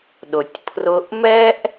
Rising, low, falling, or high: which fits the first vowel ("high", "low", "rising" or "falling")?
low